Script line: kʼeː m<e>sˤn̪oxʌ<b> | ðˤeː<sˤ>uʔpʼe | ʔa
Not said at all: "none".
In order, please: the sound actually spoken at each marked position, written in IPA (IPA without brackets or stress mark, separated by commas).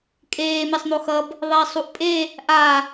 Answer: e, b, sˤ